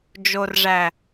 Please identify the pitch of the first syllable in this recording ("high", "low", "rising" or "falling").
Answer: low